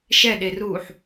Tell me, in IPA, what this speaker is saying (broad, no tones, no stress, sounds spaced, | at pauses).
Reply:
ʃ ɛ ɗ e r uː ħ